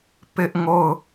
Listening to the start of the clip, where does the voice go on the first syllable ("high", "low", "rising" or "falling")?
high